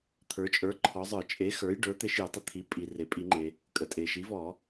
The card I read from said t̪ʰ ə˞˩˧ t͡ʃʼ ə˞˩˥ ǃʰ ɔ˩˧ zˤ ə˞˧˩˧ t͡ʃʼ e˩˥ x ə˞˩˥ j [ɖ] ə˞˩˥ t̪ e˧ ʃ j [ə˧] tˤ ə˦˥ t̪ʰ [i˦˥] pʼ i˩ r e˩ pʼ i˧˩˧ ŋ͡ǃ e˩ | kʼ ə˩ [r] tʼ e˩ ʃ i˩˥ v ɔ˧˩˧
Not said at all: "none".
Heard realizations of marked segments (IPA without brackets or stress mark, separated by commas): ɖ, ə˩˧, i˩˥, none